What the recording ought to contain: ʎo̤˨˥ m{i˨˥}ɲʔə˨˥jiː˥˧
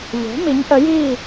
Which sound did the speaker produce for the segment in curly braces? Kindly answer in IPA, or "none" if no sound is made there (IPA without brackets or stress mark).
i˨˥